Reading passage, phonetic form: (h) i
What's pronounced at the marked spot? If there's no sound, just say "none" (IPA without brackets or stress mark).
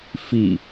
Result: f